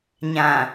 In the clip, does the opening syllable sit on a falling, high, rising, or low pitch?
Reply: low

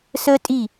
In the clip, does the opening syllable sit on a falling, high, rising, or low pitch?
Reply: high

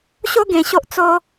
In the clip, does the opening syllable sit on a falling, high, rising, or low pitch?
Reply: high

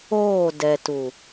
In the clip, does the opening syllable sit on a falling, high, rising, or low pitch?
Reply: falling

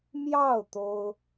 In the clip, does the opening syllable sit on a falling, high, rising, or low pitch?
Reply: falling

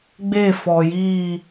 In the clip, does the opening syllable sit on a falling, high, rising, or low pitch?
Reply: falling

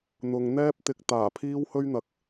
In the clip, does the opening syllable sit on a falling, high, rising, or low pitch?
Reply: low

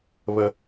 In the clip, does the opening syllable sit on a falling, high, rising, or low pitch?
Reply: low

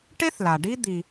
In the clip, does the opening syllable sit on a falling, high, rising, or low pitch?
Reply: high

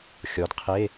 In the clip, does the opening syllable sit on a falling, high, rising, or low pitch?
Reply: rising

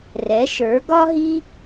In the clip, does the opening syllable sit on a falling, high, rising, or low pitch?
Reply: rising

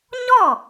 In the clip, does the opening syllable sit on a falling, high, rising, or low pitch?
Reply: falling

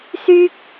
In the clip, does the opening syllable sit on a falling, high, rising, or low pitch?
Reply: high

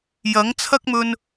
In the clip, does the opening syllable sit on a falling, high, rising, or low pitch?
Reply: rising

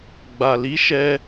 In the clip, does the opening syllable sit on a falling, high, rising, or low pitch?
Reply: low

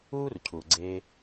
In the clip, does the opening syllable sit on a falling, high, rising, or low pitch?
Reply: high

